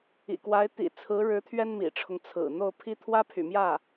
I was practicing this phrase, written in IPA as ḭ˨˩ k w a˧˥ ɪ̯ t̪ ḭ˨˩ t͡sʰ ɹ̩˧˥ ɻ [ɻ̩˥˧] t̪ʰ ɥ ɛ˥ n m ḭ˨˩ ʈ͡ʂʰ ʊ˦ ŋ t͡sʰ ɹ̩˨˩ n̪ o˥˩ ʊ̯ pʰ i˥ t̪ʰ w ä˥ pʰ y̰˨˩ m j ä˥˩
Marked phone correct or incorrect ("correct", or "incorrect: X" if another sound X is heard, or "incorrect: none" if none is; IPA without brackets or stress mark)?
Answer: incorrect: ɻ̩˧˥